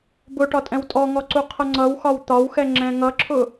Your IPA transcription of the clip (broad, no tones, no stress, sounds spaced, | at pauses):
b ʊ ʈ ɒ tʼ ɛ̃ w tʼ ɔ ŋ ɔ ǀ u qʰ ʌ ŋ͡ǀ ʌ w x ɒ w t̪ ɒ w x ɛ ŋ͡ǁ ɛ̃ ŋ ʌ ǁʰ ʊ